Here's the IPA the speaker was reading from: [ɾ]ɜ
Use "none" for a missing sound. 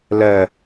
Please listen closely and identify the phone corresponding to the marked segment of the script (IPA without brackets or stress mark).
l